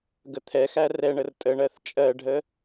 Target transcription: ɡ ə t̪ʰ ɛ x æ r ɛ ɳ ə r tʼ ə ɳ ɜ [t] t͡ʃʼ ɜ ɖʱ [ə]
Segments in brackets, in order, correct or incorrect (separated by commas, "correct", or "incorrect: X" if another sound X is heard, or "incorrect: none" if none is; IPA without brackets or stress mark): incorrect: θ, correct